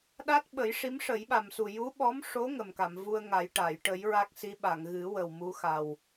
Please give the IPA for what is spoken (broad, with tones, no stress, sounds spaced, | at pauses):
ɗ a˦˥ t̚ ɓ ə˨˩˦ j ʂ i˧˥ m ʂ ə˨˩˦ j ɓ a˨˩ m s u˨˩ j u˧˥ ɓ ɔ˧˥ m ʂ o˧˥ ŋ ə˨˩ m k a˨˩˨ m v u˧ ə̯ ŋ a˨˩˦ j ʈ a˨˩˨ j ʈ ə˨˩˦ j ɹ a˦˥ k̚ s i˧˥ ɓ a˨˩˨ ŋ ɣ ɨ˨˩˦ w ə˨˩ w m u˧˥ x a˨˩ w